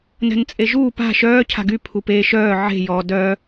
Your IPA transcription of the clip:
n ɛ̤ n t͡sʼ e ʒ uː p a̤ ʃ œː cʰ a̤ ɡ y pʰ u p eː ʃ œː ʕ e̤ j ɔ d œ

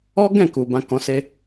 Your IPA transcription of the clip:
ɔ˦ ɡ ɛ̃˦˨ k u˨ b ã˨˦ k ɔ̃˧ s e˦

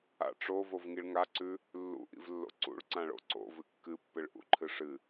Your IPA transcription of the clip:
a̰ ʈ͡ʂ o v o v ŋ i ɭ ŋ a ǀ ʉ | lː ṵ ʔ ḭ v lː o̰ ǀ ṵ ɭ ǀ ã ɭ o̰ ǀ o̰ v ɨ kː ɨ pː ɨ ɭ ʔ ṵ ǃʰ ɨ ʂ ɨ

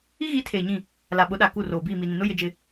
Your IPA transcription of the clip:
i˦ ɣ i˨˦ tʰ eː˨ ɲ ĩ˦˨ | l a˨ ɓ ʊ˨˦ ɗ a˨ k u˦˨ r oː˨ b iː˦˨ m i˨ n ĩ˨ n ʊ˦ j ɪ˦ d͡ʒ ɪ˦

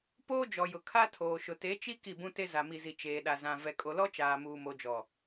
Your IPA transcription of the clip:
p oː˦ d͡ʒ ɔ˨ j ʊ˨ kʰ a˦ tʰ oː˨ ʃ ʊ˨ t e˨˦ t͡ʃ i˦ k i˦˨ b ũ˦ t e˦ z a˨ m i˨ z i˨ t͡ʃ eː˨ ɗ a˨ z ã˨ v ɛ˨ kʼ o˨ l ɔ˦ t͡ʃ aː˨ m uː˨ m o˨ d͡ʒ ɔ˨

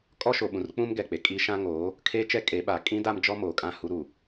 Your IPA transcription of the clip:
kʼ ɔ˦ ʃ o˨ ɓ ũ˨ r k͡p ũ˦ m ɡ ɛ˨ k͡p e˨ kʼ i˦ ʃ ã˦ ŋ oː˨˦ | kʰ eː˦ t͡ʃ ɛ˦ kʼ e˨˦ ɓ a˨ kʼ ĩ˦ d a˦ m d͡ʒ ɔ˦ m oː˨ kʼ ã˦˨ h u˦ ɾ u˨

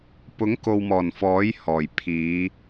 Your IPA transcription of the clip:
p ʊ˨˥ ŋ k o˨ w m ɔː˨˩ n f ɔː˨˥ j h ɔː˨˩ j pʰ iː˨˧

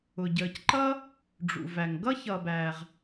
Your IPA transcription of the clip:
ʊ˩ ɟ əː˩ c ǃ ʌ˥ | ɖ͡ʐ ṵ˩ v æ˩ ŋ ɡ ʌ˥ ç ʌ˩ b æː˩ ʁ

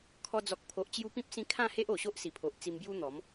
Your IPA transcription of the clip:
kʰ ɔ˧ d͡z ɔ˨ k̚ pʰ o˨ ʔ t͡ɕ j u˧ p ĩ˦ p̚ s ĩ˧ kʰ ã˥˧ h e˦ ʔ o˨˩ ɕ o˦ ʔ s i˨˩ pʰ o˨ ʔ t͡s i˧ m b j u˦ n̪ ɔ˨˦ m

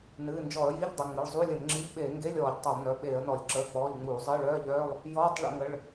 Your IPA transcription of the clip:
n ɨː˩˧˩ n d͡ʒ ɔ˧˩˧ ə̯ j i˧˥˧ ʎ dˤ ə˩˧˩ ŋ͡m ə˩˧˩ ɭ zˤ u˧˥˧ lʲ ə˧˩˧ n ŋ͡ǁ i˧˥˧ ʎ ɓ eː˧˩˧ ŋ ɡ e˧˥˧ lʲ ɔː˧˩˧ ʎ tˤ œ˧˩˧ lˠ n œ˩˧˩ ɓ eː˧˩˧ ə̯ n ɔ˧˩˧ lʲ ǁ əː˩˧˩ k͡p ɔː˩˧˩ ʎ ŋ͡m uː˧˩˧ zˤ əː˧˥˧ ɭ œː˧˥˧ ʎ œː˧˥˧ lˠ | j ɔː˧˥˧ tˤ ɭ ə̰˧˩˧ ŋ ə˩˧˩ ɭ

